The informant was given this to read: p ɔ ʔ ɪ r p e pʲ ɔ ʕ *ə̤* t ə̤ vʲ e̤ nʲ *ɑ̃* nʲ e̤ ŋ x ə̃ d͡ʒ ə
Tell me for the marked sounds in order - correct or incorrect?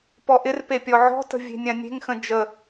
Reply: incorrect: ɔ̤, incorrect: ã

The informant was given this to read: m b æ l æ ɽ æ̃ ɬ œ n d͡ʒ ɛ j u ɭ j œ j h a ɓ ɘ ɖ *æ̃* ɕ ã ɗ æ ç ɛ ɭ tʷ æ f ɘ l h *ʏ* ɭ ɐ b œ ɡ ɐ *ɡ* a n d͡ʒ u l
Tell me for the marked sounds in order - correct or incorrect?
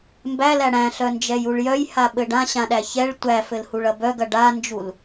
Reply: incorrect: ã, incorrect: u, incorrect: ɖ

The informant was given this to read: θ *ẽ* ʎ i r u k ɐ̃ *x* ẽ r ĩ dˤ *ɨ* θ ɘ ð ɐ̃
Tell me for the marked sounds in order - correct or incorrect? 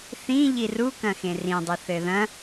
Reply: incorrect: ĩ, correct, correct

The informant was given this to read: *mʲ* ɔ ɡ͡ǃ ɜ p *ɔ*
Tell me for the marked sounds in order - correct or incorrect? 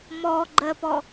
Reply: incorrect: m, correct

